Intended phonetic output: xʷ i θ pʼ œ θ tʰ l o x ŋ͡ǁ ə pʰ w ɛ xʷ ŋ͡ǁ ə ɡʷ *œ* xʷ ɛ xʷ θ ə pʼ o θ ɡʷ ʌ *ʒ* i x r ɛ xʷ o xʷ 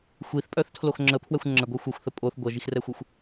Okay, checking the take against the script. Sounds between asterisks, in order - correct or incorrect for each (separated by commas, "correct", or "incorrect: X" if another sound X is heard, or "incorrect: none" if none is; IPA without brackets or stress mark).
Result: correct, correct